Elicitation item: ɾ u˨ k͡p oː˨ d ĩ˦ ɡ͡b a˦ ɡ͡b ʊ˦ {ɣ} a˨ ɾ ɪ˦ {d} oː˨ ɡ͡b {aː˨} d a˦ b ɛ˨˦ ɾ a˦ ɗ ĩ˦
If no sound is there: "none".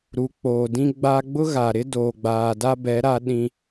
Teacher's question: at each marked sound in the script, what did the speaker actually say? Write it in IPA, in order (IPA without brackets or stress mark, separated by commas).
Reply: ɣ, d, aː˨